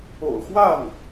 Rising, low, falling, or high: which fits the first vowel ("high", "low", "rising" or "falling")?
low